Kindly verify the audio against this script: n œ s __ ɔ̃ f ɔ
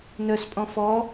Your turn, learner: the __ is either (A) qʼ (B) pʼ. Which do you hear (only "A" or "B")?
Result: B